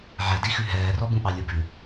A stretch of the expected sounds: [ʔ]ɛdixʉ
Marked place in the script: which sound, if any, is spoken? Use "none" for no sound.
ʕ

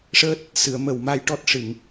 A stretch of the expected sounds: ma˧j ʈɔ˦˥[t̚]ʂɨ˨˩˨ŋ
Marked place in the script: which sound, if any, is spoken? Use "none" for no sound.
t̚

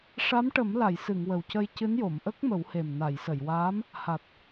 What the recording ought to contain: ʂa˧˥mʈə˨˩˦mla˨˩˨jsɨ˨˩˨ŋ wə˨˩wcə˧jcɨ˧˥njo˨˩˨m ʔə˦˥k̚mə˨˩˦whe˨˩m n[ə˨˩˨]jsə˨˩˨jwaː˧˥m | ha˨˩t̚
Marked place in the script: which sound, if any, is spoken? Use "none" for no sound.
a˨˩˨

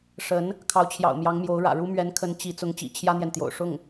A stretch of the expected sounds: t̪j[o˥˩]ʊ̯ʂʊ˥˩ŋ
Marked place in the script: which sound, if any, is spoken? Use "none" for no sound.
o̰˨˩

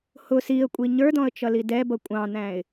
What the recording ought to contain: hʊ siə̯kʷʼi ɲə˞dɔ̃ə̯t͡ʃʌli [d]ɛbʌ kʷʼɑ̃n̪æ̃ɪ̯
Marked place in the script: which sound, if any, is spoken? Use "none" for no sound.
d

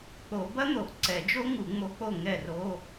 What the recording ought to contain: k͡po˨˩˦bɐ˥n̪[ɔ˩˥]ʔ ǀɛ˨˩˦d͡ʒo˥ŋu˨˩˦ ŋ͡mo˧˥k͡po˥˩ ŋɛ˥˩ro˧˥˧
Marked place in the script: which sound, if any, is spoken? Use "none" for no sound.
o˩˥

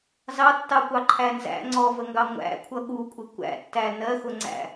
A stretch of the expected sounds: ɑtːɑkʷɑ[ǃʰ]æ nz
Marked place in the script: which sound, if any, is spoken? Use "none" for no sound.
ǃʰ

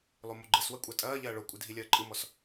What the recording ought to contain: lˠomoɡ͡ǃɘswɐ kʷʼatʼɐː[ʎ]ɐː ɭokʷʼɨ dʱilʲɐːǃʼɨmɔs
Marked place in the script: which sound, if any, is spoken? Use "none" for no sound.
ʎ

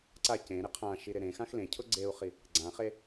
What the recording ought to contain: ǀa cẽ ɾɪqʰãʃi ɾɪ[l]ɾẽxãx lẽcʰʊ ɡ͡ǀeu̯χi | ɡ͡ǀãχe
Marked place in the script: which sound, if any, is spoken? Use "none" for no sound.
none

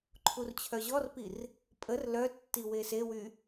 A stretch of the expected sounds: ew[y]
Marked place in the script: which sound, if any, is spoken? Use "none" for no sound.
y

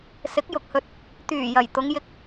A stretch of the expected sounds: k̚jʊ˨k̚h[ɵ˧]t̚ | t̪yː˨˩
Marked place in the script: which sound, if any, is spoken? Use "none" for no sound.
ɵ˧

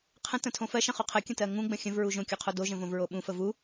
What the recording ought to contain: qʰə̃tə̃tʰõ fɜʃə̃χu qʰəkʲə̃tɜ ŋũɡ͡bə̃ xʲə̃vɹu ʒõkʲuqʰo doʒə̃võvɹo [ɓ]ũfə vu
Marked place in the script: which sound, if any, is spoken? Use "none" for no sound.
ɓ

